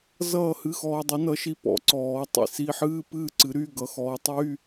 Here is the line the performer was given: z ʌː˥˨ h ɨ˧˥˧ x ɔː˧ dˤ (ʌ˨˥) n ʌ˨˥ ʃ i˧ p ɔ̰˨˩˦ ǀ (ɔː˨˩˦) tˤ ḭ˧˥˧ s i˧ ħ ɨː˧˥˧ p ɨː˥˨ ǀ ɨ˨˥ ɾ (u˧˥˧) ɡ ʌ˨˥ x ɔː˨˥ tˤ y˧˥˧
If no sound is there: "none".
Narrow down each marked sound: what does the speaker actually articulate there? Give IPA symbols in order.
ʌ˨˥, ɔː˨˩˦, y˧˥˧

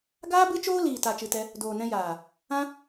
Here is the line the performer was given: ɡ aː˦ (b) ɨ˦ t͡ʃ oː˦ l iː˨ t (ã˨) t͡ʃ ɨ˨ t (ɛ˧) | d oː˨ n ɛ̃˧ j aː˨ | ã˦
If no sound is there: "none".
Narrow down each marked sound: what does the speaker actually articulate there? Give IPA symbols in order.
b, a˨, ɛ˧

